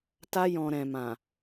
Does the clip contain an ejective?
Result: no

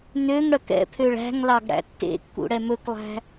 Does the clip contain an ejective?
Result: no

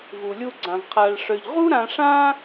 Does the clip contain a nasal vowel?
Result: yes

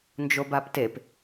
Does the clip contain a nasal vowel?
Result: no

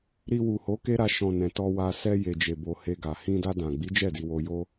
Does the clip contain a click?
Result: no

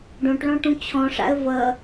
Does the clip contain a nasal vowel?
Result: yes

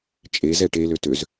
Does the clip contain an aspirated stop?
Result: no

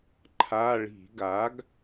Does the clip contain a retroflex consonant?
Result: yes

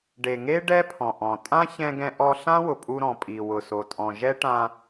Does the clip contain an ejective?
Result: yes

